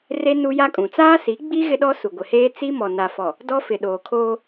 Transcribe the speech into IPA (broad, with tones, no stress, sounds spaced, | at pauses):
r e˦ n u˦ j a˦ kʼ ũ˨ t͡s aː˦ s i˨˦ ɡ͡b i˦ ɣ ɪ˦ ɗ ɔ˦ s u˨ ɡʷ ɪ˨ h eː˦ t͡s i˦ m ɔ˨ n a˨ f ɔ˨ | d ɔ˦ f ɪ˨ ɗ oː˨ kʰ oː˦